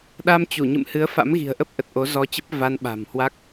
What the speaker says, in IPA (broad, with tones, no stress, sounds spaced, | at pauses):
ɗ a˧ m t͡ɕ u˧˩ ɲ ɨ̰˧˨ m h ɨ˨˦ ə̯ f a̰˧˥ m ɣ i̤˨˩ ə̯ ʔ ə˦˥ p̚ ʔ ə˨˩ t̚ ʔ o˨˦ z ɔ˧ t͡ɕ ə˦˥ p̚ v a˧ n ɓ a̤˨˩ m h w a˦˥ k̚